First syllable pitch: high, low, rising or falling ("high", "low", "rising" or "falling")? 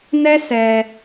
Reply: high